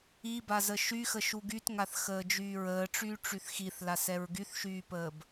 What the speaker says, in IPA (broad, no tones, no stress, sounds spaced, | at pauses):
i b a z ə ʃ y x ə ʃ u ɡ y t ŋ a θ x əː d͡ʒ yː ɹ əː ʈ͡ʂ yː ʈ͡ʂ y θ x i θ l a s ɛ ɹ ɡ y θ ʃ yː p əː b